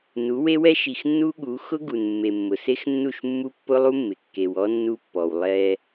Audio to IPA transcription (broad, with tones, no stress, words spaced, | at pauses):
nu˨˦we˦wɛ˦ ʃi˨xnːu˦ɠu˨˦ xʊ˦ɡu˨n mːe˨mːʊ˨se˦xnːu˦˨ʃ mːu˦pːʊ˦lˠu˦mːɪ˨ kːe˨wɔ˦ nːu˦pːɔ˨w lˠɛ˦